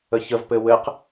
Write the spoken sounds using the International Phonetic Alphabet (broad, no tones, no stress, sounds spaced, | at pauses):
ə ç ə v p ɘ w ɘ q